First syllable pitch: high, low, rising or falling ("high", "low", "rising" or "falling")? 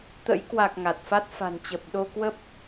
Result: rising